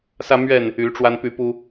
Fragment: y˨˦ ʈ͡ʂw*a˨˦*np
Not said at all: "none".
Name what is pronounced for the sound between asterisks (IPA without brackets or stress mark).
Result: a˦